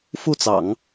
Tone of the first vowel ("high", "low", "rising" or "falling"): falling